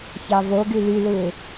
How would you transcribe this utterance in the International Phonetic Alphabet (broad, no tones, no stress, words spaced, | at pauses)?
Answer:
çɑvoɡy lylɯɪ̯